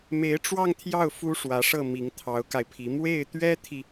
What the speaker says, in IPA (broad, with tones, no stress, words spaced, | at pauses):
me˧˥ɪ̯ʈ͡ʂwɑ˥˧ŋt̪ʰjɑ˥˩ʊ̯ fu˥ʂwä˧˥ʂɤ˥˩ mi˧˥ŋt̪ʰɑ˧˥ʊ̯ka˧ɪ̯pʰi˧˥ mwe˥˩ɪ̯t̪ɥɛ˥t̪ʰi˨